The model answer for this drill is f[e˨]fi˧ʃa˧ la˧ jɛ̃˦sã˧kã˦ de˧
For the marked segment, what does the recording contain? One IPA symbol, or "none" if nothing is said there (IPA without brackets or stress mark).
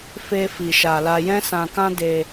e˦